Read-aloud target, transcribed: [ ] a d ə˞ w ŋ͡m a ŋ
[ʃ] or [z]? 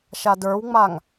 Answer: ʃ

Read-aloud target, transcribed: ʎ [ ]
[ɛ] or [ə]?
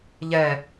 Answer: ɛ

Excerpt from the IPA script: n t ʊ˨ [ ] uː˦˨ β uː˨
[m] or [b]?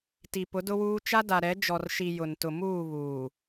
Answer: m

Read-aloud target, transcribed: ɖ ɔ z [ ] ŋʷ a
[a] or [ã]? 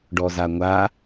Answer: a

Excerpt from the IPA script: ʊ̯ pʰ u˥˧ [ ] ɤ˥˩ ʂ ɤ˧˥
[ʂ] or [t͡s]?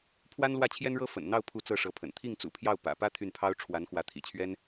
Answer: t͡s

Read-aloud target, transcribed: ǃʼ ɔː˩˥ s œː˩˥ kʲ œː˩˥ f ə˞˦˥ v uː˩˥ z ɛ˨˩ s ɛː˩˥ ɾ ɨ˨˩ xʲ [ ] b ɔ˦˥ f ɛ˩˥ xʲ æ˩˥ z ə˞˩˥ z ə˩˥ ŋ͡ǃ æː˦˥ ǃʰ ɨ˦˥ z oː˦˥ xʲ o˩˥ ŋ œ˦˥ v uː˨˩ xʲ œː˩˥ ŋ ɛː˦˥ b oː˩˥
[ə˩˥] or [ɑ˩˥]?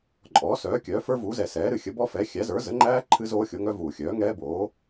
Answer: ə˩˥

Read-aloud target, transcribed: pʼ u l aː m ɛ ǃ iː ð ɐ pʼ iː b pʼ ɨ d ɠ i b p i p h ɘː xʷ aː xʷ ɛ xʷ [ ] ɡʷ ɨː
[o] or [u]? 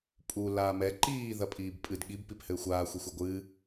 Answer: o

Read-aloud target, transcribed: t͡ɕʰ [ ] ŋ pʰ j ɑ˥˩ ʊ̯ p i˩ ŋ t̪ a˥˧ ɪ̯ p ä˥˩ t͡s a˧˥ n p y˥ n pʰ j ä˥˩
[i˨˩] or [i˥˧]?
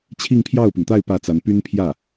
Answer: i˥˧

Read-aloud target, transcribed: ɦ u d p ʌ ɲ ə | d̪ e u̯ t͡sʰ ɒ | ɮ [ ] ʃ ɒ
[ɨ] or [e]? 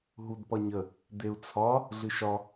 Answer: ɨ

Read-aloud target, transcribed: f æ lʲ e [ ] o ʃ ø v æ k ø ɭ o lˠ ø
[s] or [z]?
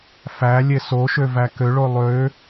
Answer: s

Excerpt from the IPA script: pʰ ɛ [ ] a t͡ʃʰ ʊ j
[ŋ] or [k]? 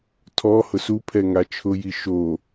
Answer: ŋ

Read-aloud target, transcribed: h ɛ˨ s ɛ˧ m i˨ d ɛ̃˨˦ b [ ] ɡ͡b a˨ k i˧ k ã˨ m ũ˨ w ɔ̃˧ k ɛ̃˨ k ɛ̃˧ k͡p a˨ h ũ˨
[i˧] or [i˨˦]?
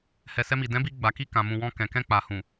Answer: i˧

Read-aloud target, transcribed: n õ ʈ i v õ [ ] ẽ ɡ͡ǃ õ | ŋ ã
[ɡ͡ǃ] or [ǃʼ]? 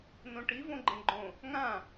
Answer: ɡ͡ǃ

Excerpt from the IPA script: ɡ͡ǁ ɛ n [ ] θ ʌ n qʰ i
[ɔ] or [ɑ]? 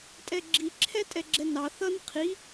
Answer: ɑ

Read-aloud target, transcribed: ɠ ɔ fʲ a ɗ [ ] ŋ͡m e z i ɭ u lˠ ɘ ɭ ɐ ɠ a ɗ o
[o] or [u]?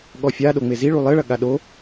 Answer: o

